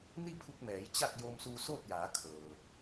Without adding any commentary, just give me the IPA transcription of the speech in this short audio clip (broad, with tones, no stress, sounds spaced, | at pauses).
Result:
n i˥˨ pʰ u˧ k̚ m ɛː˩˧ j t͡ɕ a˥˨ k̚ j oː˧ m s uː˧ s oː˥˨ t̚ j aː˩˧ kʰ ɤː˩